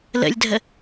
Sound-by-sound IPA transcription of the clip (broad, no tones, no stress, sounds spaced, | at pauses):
l ə̰ lʲ dʱ ə